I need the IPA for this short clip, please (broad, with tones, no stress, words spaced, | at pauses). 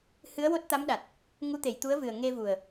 hɨ˧˥ə̯wo˦˥t̚t̪a˧˥mɗa˨˩t̚ | ŋu˧˥t̪e˨˩˨jt̪u˧˥ə̯vɨ˨˩ə̯ ŋe˧vu˨˩ə̯